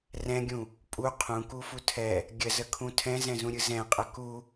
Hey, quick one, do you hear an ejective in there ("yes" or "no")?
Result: yes